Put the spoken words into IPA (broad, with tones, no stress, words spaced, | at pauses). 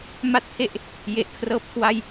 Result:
ma˥˩t̚kʰe˥˩ʔ | je˨˩ʔkʰrɤː˥˩p̚kʰwa˥˩j